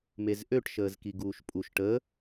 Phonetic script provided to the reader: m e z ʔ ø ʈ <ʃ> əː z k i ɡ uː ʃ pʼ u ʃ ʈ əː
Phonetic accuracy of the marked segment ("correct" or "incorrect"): correct